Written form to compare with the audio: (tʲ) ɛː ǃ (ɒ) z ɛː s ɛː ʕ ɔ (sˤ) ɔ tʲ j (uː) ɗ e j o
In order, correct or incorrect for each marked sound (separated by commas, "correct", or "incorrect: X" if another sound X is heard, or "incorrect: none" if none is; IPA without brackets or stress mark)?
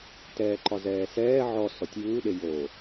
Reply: incorrect: t, correct, incorrect: s, correct